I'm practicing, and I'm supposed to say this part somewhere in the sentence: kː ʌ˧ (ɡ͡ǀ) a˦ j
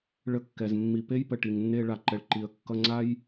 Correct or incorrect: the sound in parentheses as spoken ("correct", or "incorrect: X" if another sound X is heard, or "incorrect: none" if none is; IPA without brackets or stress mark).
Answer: incorrect: ŋ͡ǀ